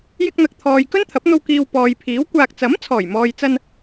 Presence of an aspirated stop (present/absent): present